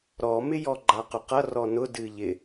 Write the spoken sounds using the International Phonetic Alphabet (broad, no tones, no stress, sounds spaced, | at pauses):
ɾ ɔ m ɪ j ɔ ɡ͡ǃ a q ʊ q ʌ r ɔ n ʊ d ɨ ʎ ɪ